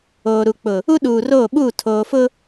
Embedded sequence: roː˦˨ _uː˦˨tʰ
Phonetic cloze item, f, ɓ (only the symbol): ɓ